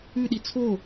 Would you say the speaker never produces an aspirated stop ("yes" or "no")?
no